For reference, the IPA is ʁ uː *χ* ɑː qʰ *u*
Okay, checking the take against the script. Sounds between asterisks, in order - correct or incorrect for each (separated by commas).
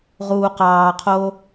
incorrect, incorrect